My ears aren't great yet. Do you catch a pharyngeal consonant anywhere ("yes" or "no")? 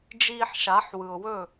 yes